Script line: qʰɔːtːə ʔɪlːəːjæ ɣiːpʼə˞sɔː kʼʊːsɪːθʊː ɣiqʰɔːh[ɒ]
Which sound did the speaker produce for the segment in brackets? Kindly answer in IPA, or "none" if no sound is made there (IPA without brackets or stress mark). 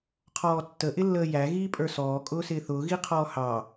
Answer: ɑ